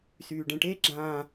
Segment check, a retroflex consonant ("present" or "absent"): present